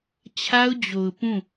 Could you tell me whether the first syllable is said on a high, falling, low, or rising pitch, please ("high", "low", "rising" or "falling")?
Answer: high